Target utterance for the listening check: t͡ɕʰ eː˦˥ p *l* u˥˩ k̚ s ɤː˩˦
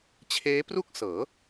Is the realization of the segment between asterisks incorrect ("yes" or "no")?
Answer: yes